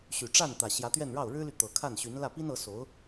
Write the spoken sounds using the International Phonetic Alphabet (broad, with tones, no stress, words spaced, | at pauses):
ɕy˨˩ʈ͡ʂa˥˩n t̪ä˨˩ɕjä˧˥t̪ɥɛ˥˧nɻɑ˥˩ʊ̯ ɻɻ̩˥ly˨ t̪ɤ˨˩kʰa˥˩nɕy˧˥n lä˥˩pi˥nɤ˧˥so˧˥ʊ̯